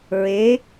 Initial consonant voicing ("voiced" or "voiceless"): voiced